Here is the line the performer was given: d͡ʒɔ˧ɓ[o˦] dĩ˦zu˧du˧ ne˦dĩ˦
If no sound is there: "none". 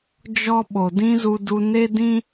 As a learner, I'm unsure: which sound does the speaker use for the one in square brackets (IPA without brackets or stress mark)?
o˨